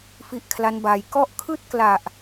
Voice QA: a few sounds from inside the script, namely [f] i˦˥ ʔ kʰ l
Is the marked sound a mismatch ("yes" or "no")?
no